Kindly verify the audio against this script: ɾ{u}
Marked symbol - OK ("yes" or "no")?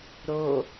no